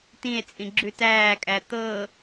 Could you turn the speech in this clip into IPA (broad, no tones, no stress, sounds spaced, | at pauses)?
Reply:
t ĩ e̯ t͡sʼ ĩ ɡ͡ǁ ʉ t æː kʼ æ t̪ ɤ